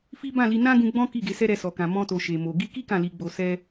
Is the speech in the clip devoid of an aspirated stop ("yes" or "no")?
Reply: yes